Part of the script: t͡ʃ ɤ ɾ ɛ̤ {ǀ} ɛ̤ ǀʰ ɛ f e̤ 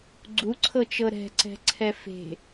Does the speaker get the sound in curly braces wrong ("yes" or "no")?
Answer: no